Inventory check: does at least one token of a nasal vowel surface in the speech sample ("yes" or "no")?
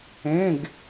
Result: yes